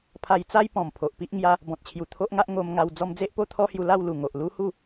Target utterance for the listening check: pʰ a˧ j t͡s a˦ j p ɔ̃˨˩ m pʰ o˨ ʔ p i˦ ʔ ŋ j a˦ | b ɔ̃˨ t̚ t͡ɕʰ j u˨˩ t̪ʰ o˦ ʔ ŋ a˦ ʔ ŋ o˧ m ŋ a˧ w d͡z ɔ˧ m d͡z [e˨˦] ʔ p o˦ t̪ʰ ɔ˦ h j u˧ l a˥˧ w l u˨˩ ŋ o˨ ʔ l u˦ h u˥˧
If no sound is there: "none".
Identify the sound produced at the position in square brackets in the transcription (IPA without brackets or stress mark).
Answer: e˦